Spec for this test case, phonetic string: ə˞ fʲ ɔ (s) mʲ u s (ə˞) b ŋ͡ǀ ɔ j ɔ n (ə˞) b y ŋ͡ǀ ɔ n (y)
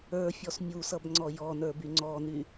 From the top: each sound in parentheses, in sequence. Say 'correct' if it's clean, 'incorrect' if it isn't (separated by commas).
correct, incorrect, correct, correct